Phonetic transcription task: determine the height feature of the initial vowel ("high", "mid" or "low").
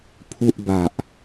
high